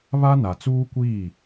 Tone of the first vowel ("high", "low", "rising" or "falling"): high